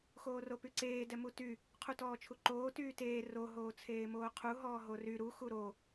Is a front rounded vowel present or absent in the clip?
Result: present